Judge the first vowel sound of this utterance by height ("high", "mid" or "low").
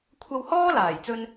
low